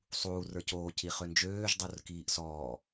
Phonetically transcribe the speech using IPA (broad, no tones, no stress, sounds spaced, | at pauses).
sˤ uː r ə˞ c oː c i χ ø n d͡ʒ øː ʒ dˤ o r k iː ʔ s ɔː